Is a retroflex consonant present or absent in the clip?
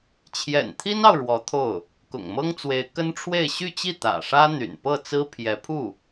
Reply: present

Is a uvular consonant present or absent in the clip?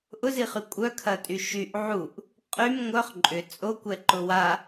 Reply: present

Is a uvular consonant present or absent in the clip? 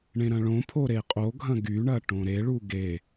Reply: present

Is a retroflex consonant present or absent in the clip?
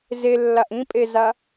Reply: absent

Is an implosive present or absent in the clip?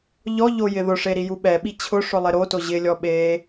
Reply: present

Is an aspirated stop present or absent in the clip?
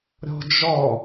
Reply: absent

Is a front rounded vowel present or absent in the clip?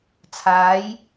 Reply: absent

